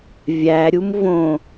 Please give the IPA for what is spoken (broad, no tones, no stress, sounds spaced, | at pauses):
vʲ æ ɾʲ u m v õ